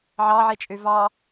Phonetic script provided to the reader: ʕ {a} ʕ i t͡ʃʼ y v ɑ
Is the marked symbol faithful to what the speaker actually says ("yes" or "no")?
no